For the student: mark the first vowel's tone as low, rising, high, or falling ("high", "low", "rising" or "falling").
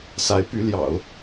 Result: rising